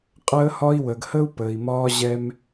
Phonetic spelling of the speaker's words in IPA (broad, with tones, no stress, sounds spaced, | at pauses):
qʼ əː˧ h ɒ˧ i̯ w ə˨ ɡ h ə˦ u̯ p əː˨ i̯ m ɒː˧ ʑ ɛ˧ m